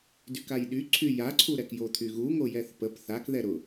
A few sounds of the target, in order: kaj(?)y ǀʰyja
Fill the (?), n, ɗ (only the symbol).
ɗ